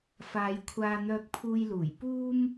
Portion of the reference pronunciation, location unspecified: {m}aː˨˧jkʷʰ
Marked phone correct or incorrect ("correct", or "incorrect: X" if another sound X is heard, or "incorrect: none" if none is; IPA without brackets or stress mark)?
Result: incorrect: f